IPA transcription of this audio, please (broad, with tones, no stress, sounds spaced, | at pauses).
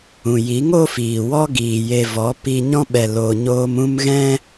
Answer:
ũ˨ j i˨˦ ŋ o˦ f iː˨ w ɔ˦ ɡ iː˨ j e˧ v ɔ˨˦ p i˧ ɲ ɔ̃˦ ɓ ɛ˧ l o˨ ɲ oː˧ m ũ˦ m ɣ ɛ̃˦